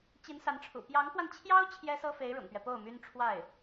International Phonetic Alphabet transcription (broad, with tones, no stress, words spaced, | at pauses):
t͡ɕi˧˥nsa˧˥nʈ͡ʂʰṵ˨˩ pjɑ˧˥ŋxwa˧nt͡ɕʰjɑ˥ʊ̯ t͡ɕʰjɛ˥sɤ˥fe˧˥ɪ̯ ɻʊ̰˨˩ŋpɥɛ˦ po˥˩ʊ̯my˥n ʈ͡ʂʰwa˥˩ɪ̯